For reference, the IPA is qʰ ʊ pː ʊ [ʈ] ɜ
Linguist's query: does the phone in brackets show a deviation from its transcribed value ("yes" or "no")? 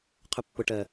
no